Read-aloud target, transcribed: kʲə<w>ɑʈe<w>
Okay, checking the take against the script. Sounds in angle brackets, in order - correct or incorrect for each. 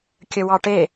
correct, incorrect

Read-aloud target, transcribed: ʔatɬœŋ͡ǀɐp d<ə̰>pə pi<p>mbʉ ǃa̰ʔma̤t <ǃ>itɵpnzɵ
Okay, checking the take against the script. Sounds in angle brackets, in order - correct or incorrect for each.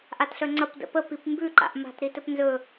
correct, correct, incorrect

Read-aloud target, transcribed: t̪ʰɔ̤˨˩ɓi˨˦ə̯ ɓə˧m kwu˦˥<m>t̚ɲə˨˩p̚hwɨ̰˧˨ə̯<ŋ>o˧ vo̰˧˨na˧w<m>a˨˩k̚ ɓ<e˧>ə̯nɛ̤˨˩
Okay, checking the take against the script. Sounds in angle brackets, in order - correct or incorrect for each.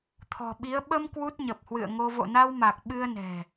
incorrect, correct, correct, incorrect

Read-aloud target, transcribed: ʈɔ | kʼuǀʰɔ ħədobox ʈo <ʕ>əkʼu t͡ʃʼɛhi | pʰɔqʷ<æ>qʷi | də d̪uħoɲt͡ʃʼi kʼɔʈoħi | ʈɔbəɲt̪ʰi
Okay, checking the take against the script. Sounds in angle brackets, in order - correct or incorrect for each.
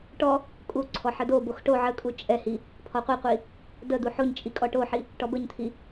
correct, incorrect

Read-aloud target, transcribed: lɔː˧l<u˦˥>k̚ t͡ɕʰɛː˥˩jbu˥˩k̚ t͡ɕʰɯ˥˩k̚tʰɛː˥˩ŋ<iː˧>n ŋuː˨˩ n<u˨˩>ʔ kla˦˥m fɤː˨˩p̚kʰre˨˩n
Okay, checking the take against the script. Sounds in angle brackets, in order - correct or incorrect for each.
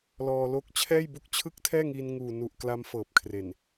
incorrect, correct, correct

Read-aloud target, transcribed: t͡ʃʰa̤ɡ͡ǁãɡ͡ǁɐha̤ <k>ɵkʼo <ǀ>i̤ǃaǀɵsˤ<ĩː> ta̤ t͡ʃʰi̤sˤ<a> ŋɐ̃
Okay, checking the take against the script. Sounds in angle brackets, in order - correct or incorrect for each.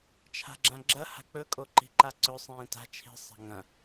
incorrect, incorrect, correct, incorrect

